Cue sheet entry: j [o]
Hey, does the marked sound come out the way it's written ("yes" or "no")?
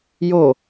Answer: yes